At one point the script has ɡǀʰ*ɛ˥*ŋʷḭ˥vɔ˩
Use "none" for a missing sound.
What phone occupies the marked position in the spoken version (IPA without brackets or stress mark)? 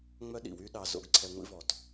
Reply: ɛ˧